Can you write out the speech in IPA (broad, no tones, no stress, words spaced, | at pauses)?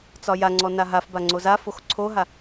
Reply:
t͡sɒjaŋ͡ǀɔ naɦafba ŋ͡ǀozafox ǀʰoɦa